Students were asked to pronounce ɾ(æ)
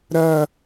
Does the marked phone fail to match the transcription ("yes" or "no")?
yes